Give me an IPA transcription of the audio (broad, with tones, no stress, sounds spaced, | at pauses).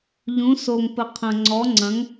ʎ ũ˩˥ s o˨˩ ŋ p ə˨˩ qʰ ɐ̃˨˩ ŋ͡ǀ ɔ˩˥ ŋ͡ǀ ɐ̃˩˥ ŋ